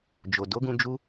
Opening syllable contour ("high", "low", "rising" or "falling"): low